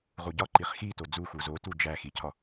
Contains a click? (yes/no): yes